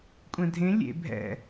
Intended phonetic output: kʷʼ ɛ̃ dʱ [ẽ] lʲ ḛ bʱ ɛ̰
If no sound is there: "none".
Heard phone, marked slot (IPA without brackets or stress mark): ẽ